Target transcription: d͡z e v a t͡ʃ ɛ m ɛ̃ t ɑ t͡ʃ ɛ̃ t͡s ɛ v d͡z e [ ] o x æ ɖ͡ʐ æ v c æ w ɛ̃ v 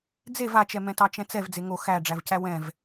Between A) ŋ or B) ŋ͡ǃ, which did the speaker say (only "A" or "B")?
A